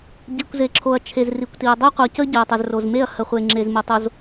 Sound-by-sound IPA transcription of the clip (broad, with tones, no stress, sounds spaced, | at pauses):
ɟ i˨ kʷ z e˨ ǁʰ o˨ ɐ̯ t͡ʃʰ e˨ z r i˨ kʷ t i˨ ɐ̯ dˤ ɛ˦ qʷ ʌ˨ c ə˦ ɟ ɛ˨ ɐ̯ tˤ ɛ˨ z r o˨ z m e˦˨ ɐ̯ h ə˨ χʷ e˨ ŋ͡ǁ e˨ z m ə˨ tˤ o˨ z